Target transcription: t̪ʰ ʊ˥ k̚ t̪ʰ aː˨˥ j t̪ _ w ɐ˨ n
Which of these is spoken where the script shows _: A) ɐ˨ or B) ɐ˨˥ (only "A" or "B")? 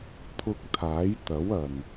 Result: B